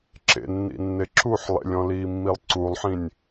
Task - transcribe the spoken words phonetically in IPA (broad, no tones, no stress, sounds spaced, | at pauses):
ǁ ḛ nː ḭ nː e ǁ u ħ lˠ ḛ lʲ ɔ̃ l iː mː i lˠ ǀ u lˠ ħ ĩ nʲ